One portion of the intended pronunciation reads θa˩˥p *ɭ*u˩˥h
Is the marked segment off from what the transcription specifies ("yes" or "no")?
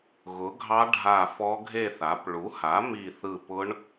no